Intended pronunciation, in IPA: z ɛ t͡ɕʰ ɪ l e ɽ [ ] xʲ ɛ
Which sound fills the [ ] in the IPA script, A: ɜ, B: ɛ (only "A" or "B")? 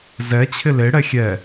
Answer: B